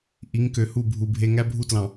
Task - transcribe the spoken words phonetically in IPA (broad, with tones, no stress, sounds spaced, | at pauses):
ʔ i˨˦ ŋ k ø˨ h u˦˨ bʱ u˨ bʱ e˦ ŋ æ˦ bʱ u˦ t l ɑ̃˨